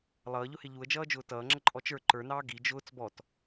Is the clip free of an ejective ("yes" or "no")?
no